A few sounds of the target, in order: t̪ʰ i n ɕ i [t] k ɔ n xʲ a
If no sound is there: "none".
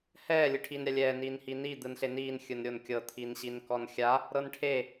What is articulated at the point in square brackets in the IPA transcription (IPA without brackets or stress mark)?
n